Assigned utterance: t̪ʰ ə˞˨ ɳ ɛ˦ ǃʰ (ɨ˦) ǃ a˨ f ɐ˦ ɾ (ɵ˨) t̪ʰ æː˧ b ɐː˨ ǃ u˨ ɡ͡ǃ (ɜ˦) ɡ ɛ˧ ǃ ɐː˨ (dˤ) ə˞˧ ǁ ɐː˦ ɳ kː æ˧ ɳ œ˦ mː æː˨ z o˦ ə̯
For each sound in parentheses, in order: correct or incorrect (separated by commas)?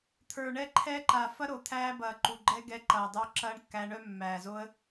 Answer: incorrect, incorrect, incorrect, correct